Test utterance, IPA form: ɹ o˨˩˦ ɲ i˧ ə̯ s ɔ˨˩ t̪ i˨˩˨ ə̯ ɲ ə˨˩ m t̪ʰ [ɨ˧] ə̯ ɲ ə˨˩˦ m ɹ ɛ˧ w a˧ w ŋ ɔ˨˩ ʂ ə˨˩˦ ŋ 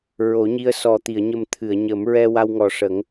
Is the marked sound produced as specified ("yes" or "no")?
no